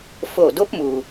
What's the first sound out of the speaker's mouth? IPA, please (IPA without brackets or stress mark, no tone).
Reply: f